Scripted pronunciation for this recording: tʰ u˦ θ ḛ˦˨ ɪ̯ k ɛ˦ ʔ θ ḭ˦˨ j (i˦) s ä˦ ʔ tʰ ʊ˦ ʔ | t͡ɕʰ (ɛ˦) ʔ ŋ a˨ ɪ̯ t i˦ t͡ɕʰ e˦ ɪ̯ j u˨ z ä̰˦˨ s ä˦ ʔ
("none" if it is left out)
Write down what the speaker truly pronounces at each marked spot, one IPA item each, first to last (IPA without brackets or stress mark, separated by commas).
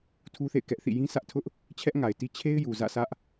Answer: ĩ˦, ɛ˦